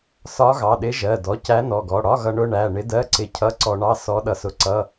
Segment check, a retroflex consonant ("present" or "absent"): present